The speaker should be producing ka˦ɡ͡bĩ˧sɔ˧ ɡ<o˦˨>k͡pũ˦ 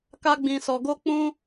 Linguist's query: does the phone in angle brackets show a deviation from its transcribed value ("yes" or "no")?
yes